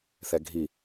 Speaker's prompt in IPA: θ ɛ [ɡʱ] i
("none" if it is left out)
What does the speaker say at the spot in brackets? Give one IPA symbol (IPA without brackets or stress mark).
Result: ɡʱ